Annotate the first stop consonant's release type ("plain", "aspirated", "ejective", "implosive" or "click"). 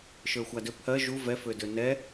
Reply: plain